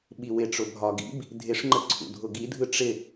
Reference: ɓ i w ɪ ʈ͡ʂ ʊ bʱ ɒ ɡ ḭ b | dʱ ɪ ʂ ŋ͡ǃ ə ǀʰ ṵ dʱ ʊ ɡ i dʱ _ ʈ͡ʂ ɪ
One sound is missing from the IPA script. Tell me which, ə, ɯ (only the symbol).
ɯ